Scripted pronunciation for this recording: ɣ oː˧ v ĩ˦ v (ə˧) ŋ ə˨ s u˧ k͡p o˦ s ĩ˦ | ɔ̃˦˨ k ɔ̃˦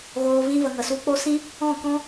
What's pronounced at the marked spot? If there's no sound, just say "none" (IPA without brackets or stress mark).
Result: ə˧